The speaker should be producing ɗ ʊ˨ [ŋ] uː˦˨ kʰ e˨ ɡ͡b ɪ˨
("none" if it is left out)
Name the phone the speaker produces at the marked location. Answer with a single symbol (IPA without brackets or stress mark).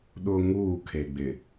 ŋ